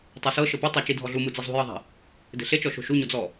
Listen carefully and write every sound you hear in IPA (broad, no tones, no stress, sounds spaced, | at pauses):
tˤ a s ɤ ʃ ɤ p a tˤ a t͡ʃ i dʱ ɔ ɮ u m ɯ d͡z i zˤ ṳ j ɤ ðˤ e̤ | d e̤ ɬ e t͡ʃ ɔ ʃ o̤ ʃ u ɲ o d͡z ɔ